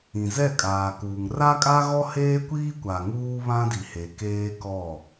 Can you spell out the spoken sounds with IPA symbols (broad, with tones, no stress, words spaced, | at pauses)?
ĩ˨zɛ˦˨kʼaː˨kuː˨ŋ ra˦kʼa˦ɣɔ˦ heː˦kʷiː˦kʷa˨ ŋuː˦βã˦di˨he˨ keː˦ kɔ˦˨